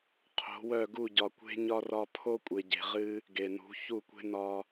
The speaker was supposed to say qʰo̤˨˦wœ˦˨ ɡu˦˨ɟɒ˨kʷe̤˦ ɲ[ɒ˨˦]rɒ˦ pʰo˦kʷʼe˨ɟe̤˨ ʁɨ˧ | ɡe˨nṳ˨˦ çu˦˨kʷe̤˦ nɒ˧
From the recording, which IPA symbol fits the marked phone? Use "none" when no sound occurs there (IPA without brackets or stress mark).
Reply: ɒ˦